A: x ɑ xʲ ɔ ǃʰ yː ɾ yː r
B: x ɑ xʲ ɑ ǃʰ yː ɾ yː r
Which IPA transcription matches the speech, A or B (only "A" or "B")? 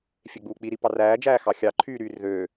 B